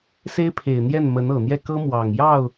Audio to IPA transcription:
s e˥ ɪ̯ pʰ e˨˩ ɪ̯ n̪ j ɛ˥˩ n m ə˧˥ n ɤ˨˩ n̪ j ɛ˥˩ k ɤ˥ m w ɑ˨˩ ŋ j ɑ˥˩ ʊ̯

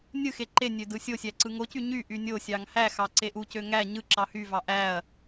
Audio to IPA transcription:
nʲ ɯ x e ǃ e nʲ ø d ɯ sʲ o sʲ æ ǀ ɯ ŋ o c y ɲ y ʔ y nʲ o sʲ ɑ ŋ h æ x ɑ ǀ e ʔ u c ø ŋ æ ɲ ɯ ǁ ɑ h y v ɑ ʔ æ ɐ̯

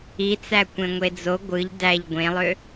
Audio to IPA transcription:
i t͡s æ kʷ ẽ ŋʷ e d͡z o ɡʷ ɯ ʎ d æ ʎ ɡʷ ẽ lˠ ø

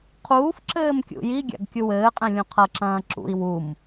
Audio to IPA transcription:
qʰ uː f ǁ ɘː m kʲ ṵ j i ɡʲ a̰ ɡ kʲ u w ɘː qʼ ɛ̃ lʲ ũ qʰ ɐ ǁ ɐ̃ː ǁ ṵ i̯ w u m

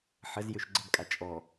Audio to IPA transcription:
ħ ə z j ø ʃ ɡ͡ǀ ə b kʼ a t͡ʃʼ ɔ

